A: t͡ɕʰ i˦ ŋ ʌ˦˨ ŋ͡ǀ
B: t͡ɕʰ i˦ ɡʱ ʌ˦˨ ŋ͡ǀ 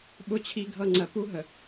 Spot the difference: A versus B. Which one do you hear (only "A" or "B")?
B